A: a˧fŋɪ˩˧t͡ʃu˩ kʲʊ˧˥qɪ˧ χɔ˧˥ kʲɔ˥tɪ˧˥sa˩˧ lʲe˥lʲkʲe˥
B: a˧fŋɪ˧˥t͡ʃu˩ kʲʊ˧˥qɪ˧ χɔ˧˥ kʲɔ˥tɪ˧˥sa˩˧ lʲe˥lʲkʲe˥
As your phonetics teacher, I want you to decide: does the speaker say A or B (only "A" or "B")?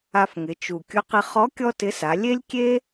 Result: A